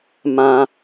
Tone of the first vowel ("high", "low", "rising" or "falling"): low